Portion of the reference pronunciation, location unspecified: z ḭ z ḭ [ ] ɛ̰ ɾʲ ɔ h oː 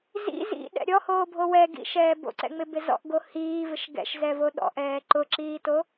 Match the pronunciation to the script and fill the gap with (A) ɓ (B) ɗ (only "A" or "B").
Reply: B